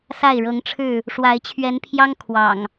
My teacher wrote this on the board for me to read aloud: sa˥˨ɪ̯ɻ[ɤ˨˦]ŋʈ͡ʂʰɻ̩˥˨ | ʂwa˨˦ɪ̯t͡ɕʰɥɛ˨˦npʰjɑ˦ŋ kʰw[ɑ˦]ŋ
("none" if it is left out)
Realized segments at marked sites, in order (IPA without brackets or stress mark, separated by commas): ɤ˨˦, ɑ̰˨˩